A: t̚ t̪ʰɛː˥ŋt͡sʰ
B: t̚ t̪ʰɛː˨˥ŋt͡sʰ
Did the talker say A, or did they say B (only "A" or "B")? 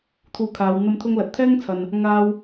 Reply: A